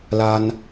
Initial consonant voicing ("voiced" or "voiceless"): voiced